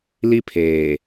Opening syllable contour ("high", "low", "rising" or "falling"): high